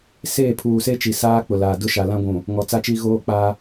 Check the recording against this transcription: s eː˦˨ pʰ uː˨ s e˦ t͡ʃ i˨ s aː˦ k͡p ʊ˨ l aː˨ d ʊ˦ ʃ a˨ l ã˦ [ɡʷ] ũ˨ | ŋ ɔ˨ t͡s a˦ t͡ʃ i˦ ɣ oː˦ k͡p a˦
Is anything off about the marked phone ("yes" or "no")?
no